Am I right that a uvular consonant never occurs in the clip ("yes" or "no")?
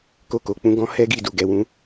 yes